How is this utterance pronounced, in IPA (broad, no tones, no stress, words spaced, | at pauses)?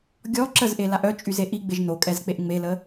ɡʲɔ ǁəzʔelaʔ œt͡ʃʼyze ʔiɡ͡beʒ nokʼɛzk͡peʔ ŋ͡melə